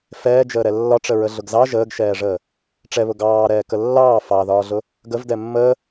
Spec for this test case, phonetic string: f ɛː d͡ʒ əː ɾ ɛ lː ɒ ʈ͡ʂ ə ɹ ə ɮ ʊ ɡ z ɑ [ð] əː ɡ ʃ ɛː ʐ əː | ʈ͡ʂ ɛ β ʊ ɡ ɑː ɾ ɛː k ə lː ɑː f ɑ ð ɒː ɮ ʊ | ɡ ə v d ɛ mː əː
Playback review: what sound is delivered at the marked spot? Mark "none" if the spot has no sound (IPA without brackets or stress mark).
ʒ